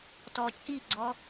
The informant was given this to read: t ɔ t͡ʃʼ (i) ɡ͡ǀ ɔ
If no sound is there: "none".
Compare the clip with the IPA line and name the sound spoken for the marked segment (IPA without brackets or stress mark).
i